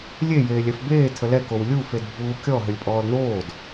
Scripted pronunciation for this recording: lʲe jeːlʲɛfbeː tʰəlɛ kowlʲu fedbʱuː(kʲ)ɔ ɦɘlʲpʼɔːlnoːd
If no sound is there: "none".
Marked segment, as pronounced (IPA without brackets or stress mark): kʲ